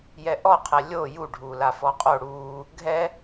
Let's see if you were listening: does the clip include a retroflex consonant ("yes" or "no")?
yes